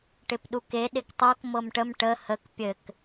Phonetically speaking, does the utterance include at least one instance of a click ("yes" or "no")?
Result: no